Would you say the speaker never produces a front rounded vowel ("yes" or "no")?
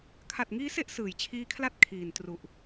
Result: yes